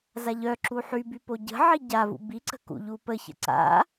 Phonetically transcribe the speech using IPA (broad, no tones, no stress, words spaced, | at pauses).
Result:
zaʎœǁu ħyby poɟə̤ʕi ɟavṵ biǀə̤ kṵʎupəçə̰ ǀa̰